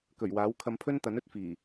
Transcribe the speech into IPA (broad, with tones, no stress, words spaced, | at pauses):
kɵ˨˩ɥwaː˨˥w kʰɐ˧mpʰɵ˥nt̪ɐ˨˥n ɵ˥t̚fiː˨˩